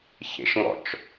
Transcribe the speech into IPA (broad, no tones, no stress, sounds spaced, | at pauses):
ç ḛ ʃ ŋ ɔ̰ t͡ʃ